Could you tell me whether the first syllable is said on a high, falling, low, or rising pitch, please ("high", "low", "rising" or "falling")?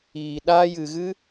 low